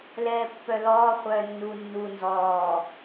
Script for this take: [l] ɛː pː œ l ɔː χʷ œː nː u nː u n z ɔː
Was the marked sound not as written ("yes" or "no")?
no